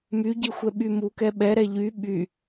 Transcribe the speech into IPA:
m y ɟ i xʷ ɛ ɓ y m u k ɛ ɓ ɛ ɾ ɛ ʎ y ɓ y

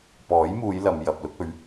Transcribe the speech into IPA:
p ɔː˨˥ j m uː˨˧ j l ɐ˨˧ m j ɐ˨ p̚ l ʊ˥ k̚ ɵ˨˥ ɥ

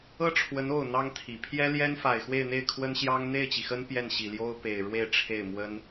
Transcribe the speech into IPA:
ɤ˥ ʈ͡ʂʰ w ə˧˥ n o˥˩ ʊ̯ n̪ ɑ˥ ŋ t̪ʰ i˨˩ pʰ j ɛ˥ l j ɛ˥ n f a˨˩ ɪ̯ x w e˥˧ ɪ̯ n̪ e˥˩ ɪ̯ kʰ w ə˥ n ɕ j ɑ˥ ŋ n̪ e˥˩ ɪ̯ t͡ɕ i˩ x ə˥ n p j ɛ˥˩ n ɕ i˨˩ l j o˥ ʊ̯ p e˨˩ ɪ̯ ɻ w e˥˧ ɪ̯ ʈ͡ʂʰ e˥˩ ɪ̯ m w ə˥ n

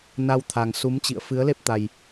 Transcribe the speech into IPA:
n a˧ w t̪ʰ a˨˩ ŋ s u˨˦ m t͡ɕ ḭ˧˨ ə̯ f ɨ˨˦ ə̯ l e˦˥ p̚ t̪ a˨˩ j

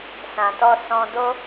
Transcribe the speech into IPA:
s ã˨ t ɔ˧ s ɔ̃˧ d o˦

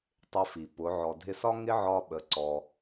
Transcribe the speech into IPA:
tˤ ɪ˧ f i˩ p ʊ˩˧ ʕ ɔ˩ dʱ ɪ˧ s ɒ˥ ŋ ɪ˥ ʕ ɒ˧ ɓ ə˩˧ ǀ ɔ˩

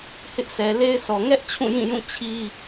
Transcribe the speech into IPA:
h ɪ˦ ʔ sʰ ɛ˨ l e˦ ɪ̯ s ɔ˨ ŋ ɛ˦ ʔ t͡ɕʰ ũ˦˨ j ĩ˦˨ j ũ˦˨ t͡ɕʰ i˦

